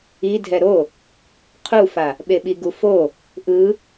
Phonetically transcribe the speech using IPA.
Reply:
i dʱ ɛ ɾ o | qʰ u f a | ɓ e ɓ i ɡ u f o | ʔ ɯ

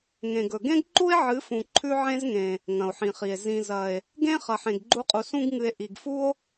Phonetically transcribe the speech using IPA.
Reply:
ŋ ẽ˨ ɡ ɵ˨ ɡ ẽ˦ ɡ ǃ u˦ e̯ ʕ ɨ˨˦ f ũ˨ ǃʰ ʉ˦ ʕ ẽ˦ z ŋ ẽ˨ | ŋ ɐ̃˨ o̯ ħ ĩ˨ χ i˨ e̯ z ĩ˨ z ɐ˨ e̯ | ɡ ẽ˦ χ ɐ˨ ħ ẽ˨ ɡ ɡ͡ǃ u˧ qʼ u˨ s ũ˧ ɡ ŋ ɨ˨ e̯ ʔ i˨ ɡ f u˦ o̯

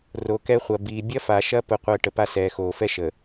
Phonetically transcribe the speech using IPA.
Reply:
r o˨ k ɛ˦ χʷ ɐ˨ b iː˨ bʲ ɐ˦ f a˨ ʃ ɐ˦ p ʊ˦ qʷ əː˦ ʈ ə˨ p a˦ s ɛː˨ x oː˨ f ɛ˦ ʃ ə˨

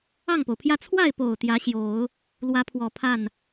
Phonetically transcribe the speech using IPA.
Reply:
ɑ˥˩ ŋ p o˩ ʊ̯ pʰ j ä˥˧ t͡sʰ w a˥˩ ɪ̯ p o˨˩ ʊ̯ t̪ j ä˧˥ ɕ j o˨˩˦ ʊ̯ | l w ä˧˥ pʰ w ɔ˨˩ pʰ a˥˩ n

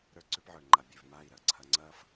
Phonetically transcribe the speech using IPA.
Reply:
ɾ ə˞˦ ǀ ʉ˦ p ʕ ə˞˨ ŋ͡ǃ a˨ bʲ ʉ˨ v m a˦˨ i̯ ɾ ɐ˨ ǀʰ ɐ˦ ŋ͡ǀ ɐ˦ f

